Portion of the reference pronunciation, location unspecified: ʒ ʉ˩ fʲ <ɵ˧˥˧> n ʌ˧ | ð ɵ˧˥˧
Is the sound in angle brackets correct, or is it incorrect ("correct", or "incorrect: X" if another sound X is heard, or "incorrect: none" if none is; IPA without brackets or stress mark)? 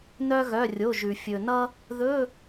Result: incorrect: ɵ˩